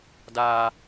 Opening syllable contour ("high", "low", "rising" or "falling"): high